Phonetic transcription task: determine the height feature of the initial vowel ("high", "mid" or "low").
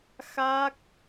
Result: low